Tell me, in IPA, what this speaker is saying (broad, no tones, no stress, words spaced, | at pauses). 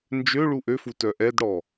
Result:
nd͡ʒø ɭuʔøfu tœʔɛdɽɔ